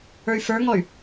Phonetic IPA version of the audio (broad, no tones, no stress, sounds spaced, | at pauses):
ə˞ y̯ f ə˞ ŋ ɔ y̯